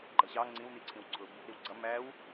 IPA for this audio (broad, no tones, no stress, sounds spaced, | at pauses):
ɡ͡ǃ ʌ ɕ ɑ ŋ͡ǀ ĩ w n i ǀʰ ĩ w ǀʰ ʊ b | ɾ i w ɡ͡ǀ ʌ m æ w